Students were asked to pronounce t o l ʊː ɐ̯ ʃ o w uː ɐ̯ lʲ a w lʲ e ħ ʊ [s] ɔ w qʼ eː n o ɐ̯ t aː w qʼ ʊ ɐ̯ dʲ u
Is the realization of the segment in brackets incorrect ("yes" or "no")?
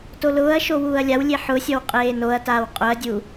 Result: yes